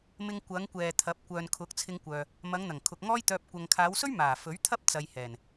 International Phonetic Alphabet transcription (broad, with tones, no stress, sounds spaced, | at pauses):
m ɪ˧ ŋ kʷ ɐ˨˧ ŋ kʷ ɛː˨ t̪ʰ ɐ˨˥ p̚ kʷ œː˨ n kʰ ʊ˨˥ k̚ t͡sʰ ɪ˧ ŋ kʷ œː˨ | m ɐ˨˧ ŋ n̪ ɐ˨˩ ŋ kʰ ʊ˨ k̚ ŋ ɔː˥ j t̪ œː˧ p̚ kʷ ɐ˨ ŋ kʰ aː˨˧ w s ɵ˥ ɥ m aː˨˩ f ɵ˨˥ ɥ t̪ʰ ɐ˥ p̚ t͡s ɐ˨ j h ɛː˨˩ n